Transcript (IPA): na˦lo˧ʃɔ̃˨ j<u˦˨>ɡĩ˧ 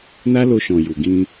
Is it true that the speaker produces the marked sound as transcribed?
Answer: no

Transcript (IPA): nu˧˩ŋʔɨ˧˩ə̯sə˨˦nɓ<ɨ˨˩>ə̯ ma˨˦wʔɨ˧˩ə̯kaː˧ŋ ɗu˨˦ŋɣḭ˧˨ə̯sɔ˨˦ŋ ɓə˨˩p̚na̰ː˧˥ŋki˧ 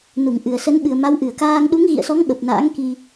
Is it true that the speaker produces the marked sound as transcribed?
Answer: yes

